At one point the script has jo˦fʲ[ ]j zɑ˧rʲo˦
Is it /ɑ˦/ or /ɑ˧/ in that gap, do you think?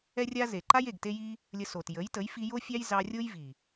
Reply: ɑ˦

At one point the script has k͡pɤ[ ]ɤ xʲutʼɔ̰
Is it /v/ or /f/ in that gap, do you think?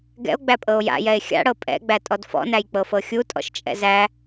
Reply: f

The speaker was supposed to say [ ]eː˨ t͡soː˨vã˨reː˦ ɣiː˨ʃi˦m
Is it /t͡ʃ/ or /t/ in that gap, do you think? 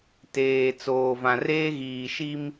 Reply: t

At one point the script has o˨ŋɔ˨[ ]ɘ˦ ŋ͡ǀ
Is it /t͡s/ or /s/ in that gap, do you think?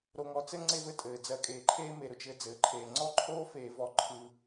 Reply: t͡s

